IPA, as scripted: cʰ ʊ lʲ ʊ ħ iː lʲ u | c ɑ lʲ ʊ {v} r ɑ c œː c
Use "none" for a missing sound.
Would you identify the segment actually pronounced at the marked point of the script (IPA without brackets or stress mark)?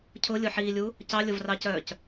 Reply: v